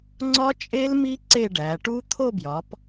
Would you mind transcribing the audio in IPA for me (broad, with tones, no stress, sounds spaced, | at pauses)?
ŋ͡ǀ ɒ˦˥ t͡ʃʼ e˦˥ l m i˦˥ ǀ e˥˧ ɖ æ˨˦ ʈ u˦˥ t̪ʰ o˥˧ b j ɒ˨˦ p